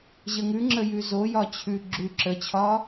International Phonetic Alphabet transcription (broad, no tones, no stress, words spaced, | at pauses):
ʑəŋʉŋ͡ǁə jʉzojɒ t͡ɕʰʉ ɡ͡ǁʉ ǁət͡ɕʰɒ